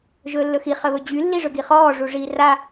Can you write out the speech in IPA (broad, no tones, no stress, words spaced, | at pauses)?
ʒɵːlːɵxi χəβɵd͡ʑy lːiʐɵɡiχɔː ʐuʐiːra